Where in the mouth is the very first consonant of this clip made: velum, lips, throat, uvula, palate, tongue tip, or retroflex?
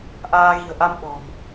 throat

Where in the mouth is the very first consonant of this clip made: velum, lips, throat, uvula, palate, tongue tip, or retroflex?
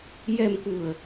palate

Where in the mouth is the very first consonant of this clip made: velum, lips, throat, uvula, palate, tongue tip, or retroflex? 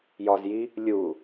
palate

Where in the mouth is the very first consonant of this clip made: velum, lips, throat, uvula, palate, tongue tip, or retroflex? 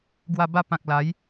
velum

